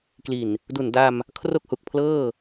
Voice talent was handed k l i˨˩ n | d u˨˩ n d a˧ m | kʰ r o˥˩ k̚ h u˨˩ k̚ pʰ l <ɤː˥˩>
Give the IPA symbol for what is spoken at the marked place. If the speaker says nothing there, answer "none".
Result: ɤː˥˩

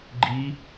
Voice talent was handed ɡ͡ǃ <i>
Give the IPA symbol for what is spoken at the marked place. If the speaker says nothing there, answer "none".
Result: i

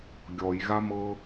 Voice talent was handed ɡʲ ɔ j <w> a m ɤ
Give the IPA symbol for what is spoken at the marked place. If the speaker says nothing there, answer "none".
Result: ɣ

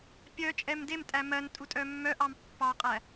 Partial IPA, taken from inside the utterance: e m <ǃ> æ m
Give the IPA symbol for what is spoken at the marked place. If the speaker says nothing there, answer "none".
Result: tʼ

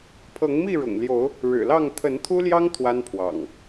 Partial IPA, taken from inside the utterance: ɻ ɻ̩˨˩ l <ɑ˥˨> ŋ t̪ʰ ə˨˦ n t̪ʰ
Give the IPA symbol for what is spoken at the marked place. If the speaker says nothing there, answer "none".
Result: ɑ˥˨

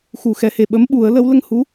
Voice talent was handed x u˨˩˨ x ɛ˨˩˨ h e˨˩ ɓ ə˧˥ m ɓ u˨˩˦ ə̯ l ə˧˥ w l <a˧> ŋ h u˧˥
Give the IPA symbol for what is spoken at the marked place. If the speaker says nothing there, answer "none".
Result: ə˧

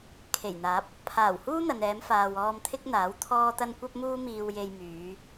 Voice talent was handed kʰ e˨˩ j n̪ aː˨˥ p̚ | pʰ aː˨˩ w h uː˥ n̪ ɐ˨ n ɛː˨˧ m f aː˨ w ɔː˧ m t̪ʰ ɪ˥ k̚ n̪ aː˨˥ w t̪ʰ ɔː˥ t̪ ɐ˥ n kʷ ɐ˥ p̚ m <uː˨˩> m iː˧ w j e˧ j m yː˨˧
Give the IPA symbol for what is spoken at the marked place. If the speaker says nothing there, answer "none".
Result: uː˥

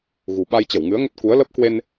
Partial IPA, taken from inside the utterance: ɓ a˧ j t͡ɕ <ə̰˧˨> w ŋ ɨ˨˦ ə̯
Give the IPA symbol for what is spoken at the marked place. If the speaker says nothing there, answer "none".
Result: ə˧˩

